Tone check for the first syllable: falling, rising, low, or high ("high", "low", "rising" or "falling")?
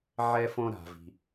high